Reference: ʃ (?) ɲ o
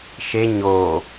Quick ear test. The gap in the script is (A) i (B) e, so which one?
B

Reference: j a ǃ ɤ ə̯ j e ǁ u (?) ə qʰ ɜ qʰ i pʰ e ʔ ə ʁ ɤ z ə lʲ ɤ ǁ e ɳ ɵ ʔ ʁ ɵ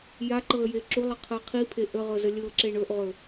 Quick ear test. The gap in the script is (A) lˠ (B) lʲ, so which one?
A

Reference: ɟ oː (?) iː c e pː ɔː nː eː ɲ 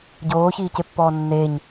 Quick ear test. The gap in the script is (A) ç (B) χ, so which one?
A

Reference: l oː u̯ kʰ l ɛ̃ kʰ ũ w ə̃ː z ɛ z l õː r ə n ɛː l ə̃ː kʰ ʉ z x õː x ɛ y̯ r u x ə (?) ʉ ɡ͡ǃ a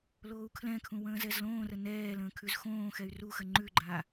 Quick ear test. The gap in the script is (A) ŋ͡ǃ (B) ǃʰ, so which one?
A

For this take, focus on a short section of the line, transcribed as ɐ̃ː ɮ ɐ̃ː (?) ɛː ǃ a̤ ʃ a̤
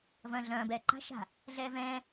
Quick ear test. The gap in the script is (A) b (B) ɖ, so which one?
A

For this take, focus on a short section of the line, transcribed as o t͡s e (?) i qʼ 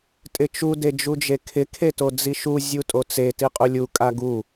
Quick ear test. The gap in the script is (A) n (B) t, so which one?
B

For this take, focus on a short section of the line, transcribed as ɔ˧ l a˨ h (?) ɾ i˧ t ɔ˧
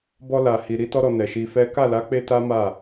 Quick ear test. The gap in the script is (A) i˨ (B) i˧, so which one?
A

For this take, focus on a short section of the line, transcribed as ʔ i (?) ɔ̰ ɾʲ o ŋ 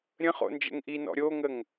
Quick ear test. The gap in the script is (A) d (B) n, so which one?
B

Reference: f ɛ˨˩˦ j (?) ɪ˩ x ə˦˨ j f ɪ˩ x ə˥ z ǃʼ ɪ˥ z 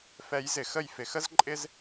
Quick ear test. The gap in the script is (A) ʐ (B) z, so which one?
B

